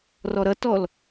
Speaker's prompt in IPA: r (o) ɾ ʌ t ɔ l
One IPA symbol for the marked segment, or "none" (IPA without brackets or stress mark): ɔ